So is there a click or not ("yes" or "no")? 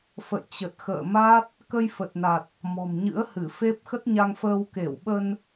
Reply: no